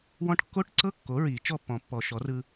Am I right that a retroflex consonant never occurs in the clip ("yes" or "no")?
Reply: no